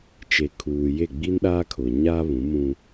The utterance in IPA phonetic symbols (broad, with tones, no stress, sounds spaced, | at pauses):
t͡ʃ e˨ kʰ uː˨ j e˦˨ ɡ͡b i˦ n ɗ aː˦ kʰ ʊ˨ ɲ a˦ β ũ˨˦ m ũ˦